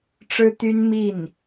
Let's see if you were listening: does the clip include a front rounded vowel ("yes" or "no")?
yes